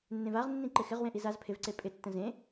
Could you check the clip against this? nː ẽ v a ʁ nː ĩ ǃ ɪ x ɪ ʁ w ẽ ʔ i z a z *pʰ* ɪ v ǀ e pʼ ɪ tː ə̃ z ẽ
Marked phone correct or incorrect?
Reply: correct